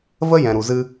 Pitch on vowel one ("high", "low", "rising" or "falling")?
high